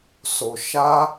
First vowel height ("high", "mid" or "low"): mid